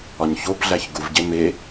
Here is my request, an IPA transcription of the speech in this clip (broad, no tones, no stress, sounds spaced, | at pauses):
ɒ ɲ ç o b ɮ æ ç ɡ u v ɟ e m e